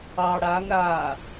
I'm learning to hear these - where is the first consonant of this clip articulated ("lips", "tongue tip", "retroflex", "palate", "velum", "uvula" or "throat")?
retroflex